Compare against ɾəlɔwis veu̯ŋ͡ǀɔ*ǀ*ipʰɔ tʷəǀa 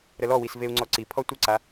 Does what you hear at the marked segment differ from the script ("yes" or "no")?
no